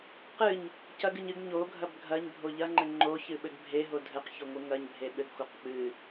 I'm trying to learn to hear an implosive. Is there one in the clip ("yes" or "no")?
yes